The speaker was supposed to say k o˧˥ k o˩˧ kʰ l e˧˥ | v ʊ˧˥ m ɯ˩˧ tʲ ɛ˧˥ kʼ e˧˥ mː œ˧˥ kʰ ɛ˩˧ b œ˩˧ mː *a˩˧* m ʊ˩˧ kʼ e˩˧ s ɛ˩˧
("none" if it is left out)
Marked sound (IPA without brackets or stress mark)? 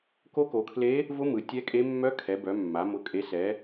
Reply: a˩˧